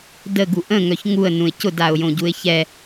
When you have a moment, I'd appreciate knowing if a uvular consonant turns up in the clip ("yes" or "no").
no